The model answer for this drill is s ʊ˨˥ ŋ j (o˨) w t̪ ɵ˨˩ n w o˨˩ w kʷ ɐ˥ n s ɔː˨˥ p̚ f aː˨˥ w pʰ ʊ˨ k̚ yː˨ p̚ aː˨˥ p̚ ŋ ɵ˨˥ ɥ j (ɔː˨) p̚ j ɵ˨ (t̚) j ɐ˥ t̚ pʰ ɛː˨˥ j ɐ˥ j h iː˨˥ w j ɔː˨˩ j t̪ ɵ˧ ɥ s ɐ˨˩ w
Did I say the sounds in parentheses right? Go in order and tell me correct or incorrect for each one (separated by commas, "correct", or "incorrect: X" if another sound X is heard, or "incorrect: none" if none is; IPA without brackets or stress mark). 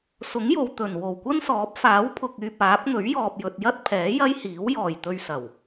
correct, correct, correct